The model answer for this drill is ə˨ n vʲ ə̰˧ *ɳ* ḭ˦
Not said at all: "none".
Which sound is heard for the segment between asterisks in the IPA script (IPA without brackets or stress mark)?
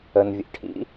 ʈʰ